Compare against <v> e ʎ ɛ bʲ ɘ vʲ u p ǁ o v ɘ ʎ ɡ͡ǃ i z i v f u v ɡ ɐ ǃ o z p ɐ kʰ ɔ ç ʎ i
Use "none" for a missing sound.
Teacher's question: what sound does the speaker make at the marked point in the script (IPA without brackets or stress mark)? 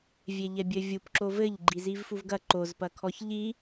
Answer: vʲ